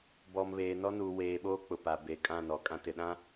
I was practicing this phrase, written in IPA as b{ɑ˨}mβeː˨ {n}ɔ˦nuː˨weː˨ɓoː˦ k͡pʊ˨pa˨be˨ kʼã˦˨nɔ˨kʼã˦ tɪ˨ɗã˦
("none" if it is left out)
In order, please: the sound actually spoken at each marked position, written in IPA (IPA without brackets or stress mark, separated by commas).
ɔ˨, n